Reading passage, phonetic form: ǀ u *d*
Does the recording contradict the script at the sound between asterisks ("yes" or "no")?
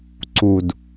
no